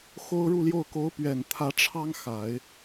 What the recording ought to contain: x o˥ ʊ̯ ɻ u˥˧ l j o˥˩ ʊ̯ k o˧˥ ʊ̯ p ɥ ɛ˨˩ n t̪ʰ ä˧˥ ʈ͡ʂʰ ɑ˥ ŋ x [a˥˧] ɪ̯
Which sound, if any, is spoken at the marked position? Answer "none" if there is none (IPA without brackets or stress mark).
a˨˩˦